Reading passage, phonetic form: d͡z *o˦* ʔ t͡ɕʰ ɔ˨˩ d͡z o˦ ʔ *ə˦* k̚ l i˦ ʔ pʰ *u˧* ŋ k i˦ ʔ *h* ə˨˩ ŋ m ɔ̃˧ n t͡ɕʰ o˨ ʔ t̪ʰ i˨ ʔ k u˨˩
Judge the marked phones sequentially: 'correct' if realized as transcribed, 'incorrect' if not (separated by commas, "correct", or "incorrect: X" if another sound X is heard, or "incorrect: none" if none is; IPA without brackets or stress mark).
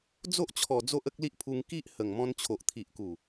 correct, correct, correct, correct